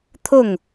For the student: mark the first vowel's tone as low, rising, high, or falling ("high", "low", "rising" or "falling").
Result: falling